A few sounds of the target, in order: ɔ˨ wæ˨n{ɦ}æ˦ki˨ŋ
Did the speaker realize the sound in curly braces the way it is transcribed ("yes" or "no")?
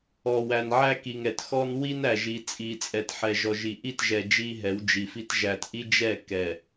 no